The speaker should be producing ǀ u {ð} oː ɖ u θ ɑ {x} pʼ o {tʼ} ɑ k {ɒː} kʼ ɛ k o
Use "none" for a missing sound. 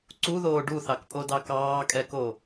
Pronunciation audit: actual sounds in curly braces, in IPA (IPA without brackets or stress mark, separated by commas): ð, k, d, ɑː